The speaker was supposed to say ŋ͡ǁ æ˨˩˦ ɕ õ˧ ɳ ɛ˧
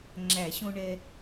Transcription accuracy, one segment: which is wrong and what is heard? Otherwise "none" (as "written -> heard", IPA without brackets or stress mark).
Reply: none